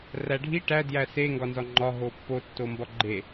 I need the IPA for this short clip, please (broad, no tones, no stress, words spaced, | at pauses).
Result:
ræɖʱi ʈæ djæse ŋɡɒnzɒŋ͡ǃɒ ɦopːo tːombɒɡ͡ǃe